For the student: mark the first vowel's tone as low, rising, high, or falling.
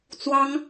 high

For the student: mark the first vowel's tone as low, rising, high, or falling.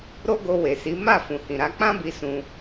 high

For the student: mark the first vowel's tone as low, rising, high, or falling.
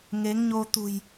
rising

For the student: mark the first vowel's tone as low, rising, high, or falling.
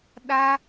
high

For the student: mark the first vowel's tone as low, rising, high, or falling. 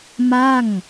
falling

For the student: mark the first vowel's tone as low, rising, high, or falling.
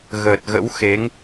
low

